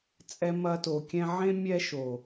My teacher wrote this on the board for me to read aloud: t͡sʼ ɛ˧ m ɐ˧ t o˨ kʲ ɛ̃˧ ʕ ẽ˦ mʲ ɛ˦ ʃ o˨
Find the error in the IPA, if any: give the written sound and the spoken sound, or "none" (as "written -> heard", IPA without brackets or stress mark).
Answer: none